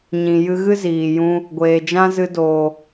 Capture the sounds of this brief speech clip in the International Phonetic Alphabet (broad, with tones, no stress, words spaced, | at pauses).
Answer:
ɲĩ˨ jɨ˧ɣɨ˦ ziː˨jũ˧ | ɡʷeː˨d͡ʒã˦zɨ˧doː˨